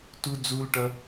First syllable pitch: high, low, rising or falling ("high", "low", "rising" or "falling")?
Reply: high